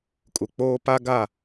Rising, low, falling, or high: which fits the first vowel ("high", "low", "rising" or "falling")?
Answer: low